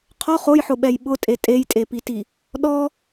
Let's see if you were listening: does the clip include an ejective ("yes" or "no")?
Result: yes